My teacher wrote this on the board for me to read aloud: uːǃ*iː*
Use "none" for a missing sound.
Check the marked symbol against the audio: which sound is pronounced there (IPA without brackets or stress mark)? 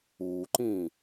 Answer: ĩː